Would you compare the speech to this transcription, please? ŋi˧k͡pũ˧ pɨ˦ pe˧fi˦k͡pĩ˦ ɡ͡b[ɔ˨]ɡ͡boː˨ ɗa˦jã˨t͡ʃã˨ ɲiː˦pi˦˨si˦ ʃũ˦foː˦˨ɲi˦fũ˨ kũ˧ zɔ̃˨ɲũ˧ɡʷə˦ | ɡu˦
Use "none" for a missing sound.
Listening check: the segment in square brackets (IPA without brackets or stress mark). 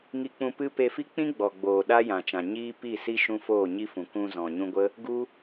ɔ˨